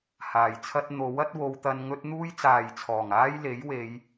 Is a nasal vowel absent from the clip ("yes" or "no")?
yes